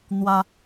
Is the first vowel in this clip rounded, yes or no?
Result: no